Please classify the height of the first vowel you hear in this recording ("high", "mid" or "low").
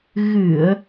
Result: high